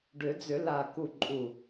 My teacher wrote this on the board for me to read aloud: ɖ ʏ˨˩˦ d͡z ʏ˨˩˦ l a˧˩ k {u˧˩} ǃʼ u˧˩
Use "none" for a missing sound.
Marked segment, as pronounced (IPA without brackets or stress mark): u˧˩